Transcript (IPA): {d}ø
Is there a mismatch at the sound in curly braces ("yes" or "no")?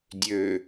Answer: yes